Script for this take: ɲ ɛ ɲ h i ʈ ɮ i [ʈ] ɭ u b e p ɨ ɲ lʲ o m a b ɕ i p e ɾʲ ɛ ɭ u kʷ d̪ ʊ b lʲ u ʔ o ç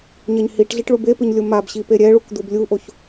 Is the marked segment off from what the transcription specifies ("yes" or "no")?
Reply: no